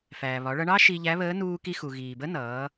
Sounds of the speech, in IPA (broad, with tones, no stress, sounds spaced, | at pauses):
f æː˩ β ɒ˩˧ ɭ ʌ˧ ɳ ɑ˥ ʃ i˧ ʎ æ˧˥ β əː˧˥ n uː˧ k i˧ x u˩ ɣ iː˩ b ə˧˥ n ʌː˩˧